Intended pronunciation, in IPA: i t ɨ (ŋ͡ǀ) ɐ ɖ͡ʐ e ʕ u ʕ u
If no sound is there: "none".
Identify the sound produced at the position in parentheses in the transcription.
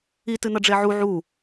n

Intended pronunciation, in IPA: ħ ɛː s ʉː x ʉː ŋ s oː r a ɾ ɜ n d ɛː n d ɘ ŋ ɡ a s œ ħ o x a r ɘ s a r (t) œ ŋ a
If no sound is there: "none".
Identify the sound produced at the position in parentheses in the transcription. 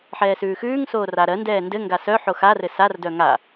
d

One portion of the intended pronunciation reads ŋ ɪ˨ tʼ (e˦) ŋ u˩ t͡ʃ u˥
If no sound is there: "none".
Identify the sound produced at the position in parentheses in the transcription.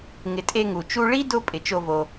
e˦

